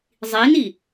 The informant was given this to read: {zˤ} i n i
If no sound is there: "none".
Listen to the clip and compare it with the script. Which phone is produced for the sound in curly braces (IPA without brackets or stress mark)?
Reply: zˤ